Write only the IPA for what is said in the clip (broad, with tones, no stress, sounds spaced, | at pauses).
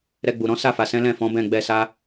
ɾ ɛ˧ ɡ͡b u˨ ɾ ɔ̃˨˦ s a˦˨ f a˨ s ɛ̃˨˦ l ɛ̃˦˨ f ɔ̃˨˦ b ɛ̃˦˨ ɡ͡b ɛ˧ s a˦